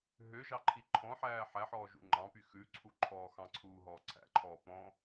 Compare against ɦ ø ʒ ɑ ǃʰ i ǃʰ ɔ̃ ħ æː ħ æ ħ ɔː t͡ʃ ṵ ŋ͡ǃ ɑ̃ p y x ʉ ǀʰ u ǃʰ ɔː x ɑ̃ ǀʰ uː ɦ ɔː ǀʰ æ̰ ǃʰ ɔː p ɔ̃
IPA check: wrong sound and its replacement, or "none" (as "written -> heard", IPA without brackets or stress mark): t͡ʃ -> ʒ